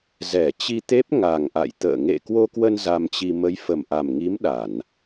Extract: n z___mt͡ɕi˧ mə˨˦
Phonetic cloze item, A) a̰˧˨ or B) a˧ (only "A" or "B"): B